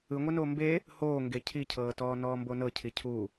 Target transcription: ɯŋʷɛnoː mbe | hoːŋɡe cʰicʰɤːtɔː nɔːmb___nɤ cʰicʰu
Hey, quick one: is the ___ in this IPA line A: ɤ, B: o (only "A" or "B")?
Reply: B